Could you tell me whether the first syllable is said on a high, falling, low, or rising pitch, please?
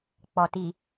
low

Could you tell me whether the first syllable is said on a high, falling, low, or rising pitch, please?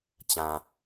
low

